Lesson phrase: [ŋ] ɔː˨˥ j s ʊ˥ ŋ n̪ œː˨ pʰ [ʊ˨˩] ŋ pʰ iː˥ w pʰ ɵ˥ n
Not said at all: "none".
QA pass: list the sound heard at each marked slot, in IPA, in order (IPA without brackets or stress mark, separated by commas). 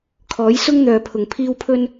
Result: kʰ, ʊ˨